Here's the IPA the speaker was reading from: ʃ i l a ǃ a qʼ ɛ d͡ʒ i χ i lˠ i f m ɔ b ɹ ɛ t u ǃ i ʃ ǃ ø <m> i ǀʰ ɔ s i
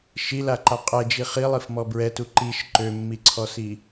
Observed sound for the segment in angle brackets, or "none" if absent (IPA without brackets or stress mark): mː